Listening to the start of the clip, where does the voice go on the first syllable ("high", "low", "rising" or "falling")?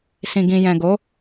low